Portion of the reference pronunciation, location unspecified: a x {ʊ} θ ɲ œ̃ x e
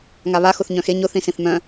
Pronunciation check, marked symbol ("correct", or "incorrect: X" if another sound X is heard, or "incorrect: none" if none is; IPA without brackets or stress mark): correct